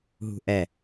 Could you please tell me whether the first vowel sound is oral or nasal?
oral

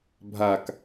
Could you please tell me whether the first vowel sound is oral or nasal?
oral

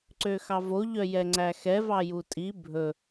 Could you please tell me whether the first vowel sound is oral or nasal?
oral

